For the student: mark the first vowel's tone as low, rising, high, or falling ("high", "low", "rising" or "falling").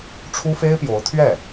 high